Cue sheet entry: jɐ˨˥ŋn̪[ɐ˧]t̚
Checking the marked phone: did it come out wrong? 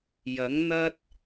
yes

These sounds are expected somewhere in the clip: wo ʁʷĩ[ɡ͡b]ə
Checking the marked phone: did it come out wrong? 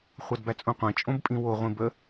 yes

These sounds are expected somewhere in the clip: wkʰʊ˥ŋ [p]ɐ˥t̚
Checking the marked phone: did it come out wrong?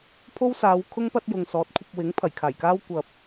no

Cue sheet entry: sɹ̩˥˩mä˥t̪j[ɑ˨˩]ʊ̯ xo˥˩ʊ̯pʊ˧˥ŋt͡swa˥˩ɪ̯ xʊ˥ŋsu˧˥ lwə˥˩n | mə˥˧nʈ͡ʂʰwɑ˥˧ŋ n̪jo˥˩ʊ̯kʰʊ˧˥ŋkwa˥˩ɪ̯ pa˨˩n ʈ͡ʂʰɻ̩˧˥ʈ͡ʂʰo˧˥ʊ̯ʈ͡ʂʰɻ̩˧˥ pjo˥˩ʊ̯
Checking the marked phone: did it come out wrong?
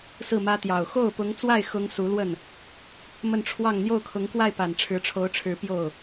no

